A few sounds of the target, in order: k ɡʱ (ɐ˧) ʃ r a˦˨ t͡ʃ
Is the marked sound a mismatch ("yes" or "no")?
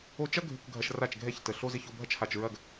no